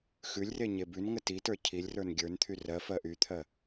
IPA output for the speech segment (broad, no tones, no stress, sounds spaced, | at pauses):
x ʉ lʲ r e ɲ e b ʉ n ŋ ə t i t ə˞ cʰ i lʲ r ə˞ n ɡʲ ə˞ n t̪ʰ y r ɜ f ɜ ʔ y t̪ʰ ɜ